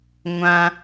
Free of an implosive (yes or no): yes